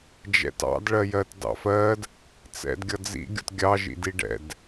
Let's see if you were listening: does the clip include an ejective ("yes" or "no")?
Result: no